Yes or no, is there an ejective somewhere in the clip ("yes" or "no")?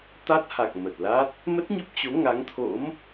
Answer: no